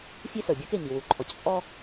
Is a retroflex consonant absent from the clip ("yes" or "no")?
yes